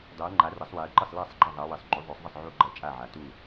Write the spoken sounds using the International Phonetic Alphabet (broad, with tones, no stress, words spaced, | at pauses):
dˤo˨˦ə̯ŋ͡ǃa˨˦rɐ˨˦sˤ we˨˦ə̯ǃɘ˥˨sˤ la˥˨sˤɡ͡ǃɐ˥˨ðˤa˨˦wɘ˨˦sˤ ŋ͡ǃu˨˦ðˤo˨˦sˤðˤɘ˥˨sˤ ʕu˥˨ɡ͡ǃɐ˥˨t͡ʃʼa˥˨ʕa˨˦ tu˥˨